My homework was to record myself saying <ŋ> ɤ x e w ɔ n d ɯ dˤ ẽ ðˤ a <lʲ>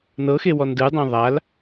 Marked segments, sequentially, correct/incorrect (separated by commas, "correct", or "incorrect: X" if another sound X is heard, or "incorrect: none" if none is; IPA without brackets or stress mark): incorrect: n, incorrect: l